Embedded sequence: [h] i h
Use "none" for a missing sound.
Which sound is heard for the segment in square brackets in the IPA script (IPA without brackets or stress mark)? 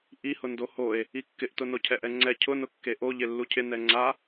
ʔ